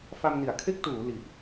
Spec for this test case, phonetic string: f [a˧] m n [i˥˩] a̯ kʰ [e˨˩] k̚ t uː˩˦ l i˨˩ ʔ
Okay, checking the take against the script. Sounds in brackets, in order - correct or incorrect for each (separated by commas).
correct, incorrect, incorrect